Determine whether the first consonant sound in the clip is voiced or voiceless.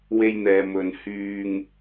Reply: voiced